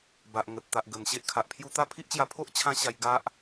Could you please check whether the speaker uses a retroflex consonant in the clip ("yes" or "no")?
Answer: no